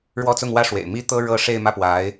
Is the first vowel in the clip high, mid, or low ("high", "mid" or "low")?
mid